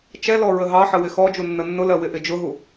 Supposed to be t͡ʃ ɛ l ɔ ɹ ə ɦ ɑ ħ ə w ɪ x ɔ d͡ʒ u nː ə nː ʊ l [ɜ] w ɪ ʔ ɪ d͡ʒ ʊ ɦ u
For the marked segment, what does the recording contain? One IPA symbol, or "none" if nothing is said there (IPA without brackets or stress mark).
ɜ